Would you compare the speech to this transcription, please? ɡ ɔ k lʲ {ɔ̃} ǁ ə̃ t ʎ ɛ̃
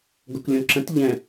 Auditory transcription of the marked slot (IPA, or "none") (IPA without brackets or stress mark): ɔ̃